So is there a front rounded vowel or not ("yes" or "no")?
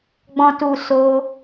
no